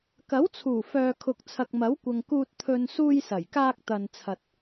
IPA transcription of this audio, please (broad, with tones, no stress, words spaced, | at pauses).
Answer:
kɐ˨˥wt͡sʰuː˨˩ fœː˨kʰʊ˨k̚ t͡sʰɐ˨k̚mɐ˨˥wkʷɐ˨ŋ kuː˧t̚t̪ʰɵ˧n suː˧jsɐ˨˩jkaː˧k̚ t̪ɐ˨nt͡sʰɐ˨t̚